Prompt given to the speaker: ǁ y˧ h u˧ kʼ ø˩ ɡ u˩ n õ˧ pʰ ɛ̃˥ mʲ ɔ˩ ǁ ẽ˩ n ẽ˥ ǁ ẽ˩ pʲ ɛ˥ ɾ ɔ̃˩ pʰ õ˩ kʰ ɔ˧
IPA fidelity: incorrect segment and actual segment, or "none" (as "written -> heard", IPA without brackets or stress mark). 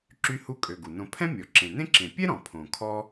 none